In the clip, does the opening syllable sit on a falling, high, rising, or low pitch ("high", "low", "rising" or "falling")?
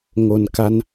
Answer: low